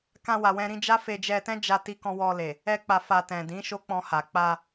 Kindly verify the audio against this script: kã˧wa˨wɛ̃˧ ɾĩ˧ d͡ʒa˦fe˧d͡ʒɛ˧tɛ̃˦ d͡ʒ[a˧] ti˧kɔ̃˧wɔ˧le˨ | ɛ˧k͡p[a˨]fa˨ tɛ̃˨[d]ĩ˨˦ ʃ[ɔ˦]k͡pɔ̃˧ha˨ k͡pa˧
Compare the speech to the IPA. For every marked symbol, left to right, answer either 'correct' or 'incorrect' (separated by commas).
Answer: correct, correct, correct, incorrect